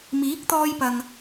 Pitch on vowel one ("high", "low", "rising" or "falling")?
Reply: rising